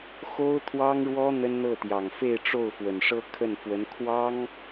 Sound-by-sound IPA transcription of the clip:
xo˥ʊ̯t̪ʰwɑ˥ŋɻwɔ˥ n̪ə˥nn̪ɤ˥˩t̪jɑ˨˩ŋ fe˥˧ɪ̯ʈ͡ʂo˥˩ʊ̯ fwə˨˩nʂɤ˥kʰə˥˩nfwə˧˥n kʰwɑ˥ŋ

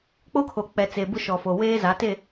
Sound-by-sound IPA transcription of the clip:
k͡po˦kʰo˨k͡pɛ˨ t͡se˨bʊ˦ʃɔ˨fo˨ weː˦ za˨˦te˦˨

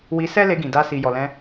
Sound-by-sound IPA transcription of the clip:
wi˧sɛ˦le˧ɡĩ˨ da˧si˨jɔ˨lɛ̃˧

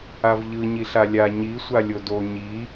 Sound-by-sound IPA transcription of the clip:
avʎɯ ɲiɬalʲa ɲi sʷalʲodo ɲi

